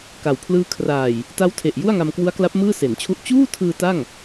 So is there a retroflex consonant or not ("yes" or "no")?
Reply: no